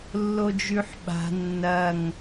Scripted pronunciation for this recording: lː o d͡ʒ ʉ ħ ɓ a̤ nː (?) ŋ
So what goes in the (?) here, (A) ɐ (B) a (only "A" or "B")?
A